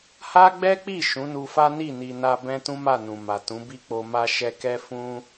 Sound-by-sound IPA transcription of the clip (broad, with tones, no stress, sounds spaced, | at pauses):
h a˦ ɡ͡b ɛ˦ k͡p i˦˨ ʃ ũ˨˦ n u˧ f a˦ n i˦˨ n i˨ n a˧ b ɛ̃˦ t ũ˦ m a˦˨ n ũ˨ m a˨ t ũ˨˦ b i˦ k͡p o˧ m a˧ ʃ ɛ˧ k ɛ˦ f ũ˦